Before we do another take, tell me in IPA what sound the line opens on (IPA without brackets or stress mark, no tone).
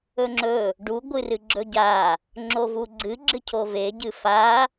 ɵ